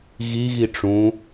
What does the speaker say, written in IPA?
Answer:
ɣ i ɣ i ʈ͡ʂ ũ

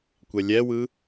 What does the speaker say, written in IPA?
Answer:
kʷ ɛ lʲ ɛ w ɯ

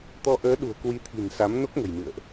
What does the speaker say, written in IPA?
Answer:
t̪ ɔ˧ ʔ əː˨˦ ɗ ṳ˨˩ ə̯ k w i˧ t̪ʰ i̤˨˩ n s a˨˦ m n o˦˥ k̚ ŋ ə̤˨˩ j m ɨ̰˧˨ ə̯ ʔ

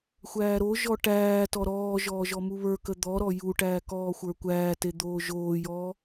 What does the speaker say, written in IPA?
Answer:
xʷ æː ɾ o ʒ ɔ ʈ æː t ɔ ɾ ɔː ʒ ɔː ʒ ɔ m u β ə˞ k ə d̪ ɔ ɾ ɔ j u ʈ æː k ɔː xʷ ə˞ kʷ æː t e d̪ oː ʒ oː j ɔː

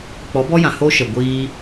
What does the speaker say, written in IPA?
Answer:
k͡p ɔ˨˦ b ɔ˦ j ã˨ h o˦ ʃ ə˨ ɡʷ iː˧

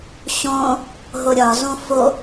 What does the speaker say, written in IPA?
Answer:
ɕ õ | ɦ o ɾʲ ɒ z õ f o

